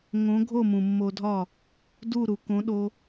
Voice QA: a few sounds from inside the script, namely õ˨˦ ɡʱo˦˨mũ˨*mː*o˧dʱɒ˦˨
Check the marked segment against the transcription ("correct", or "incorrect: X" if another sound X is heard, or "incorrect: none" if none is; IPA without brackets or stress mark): correct